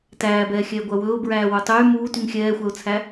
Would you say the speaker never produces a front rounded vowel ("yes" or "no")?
no